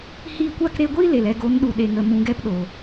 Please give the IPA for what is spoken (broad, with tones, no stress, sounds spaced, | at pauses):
h iː˧ kʷ a˦˨ k ɾ e˧ ɡʷ iː˦ l e˨ l ɛ˦˨ ɡ o˨˦ n ɗ u˨ ɗ e˨ ŋ ə˨ m ũ˨˦ ɡ ɛ˦ p ɗ oː˨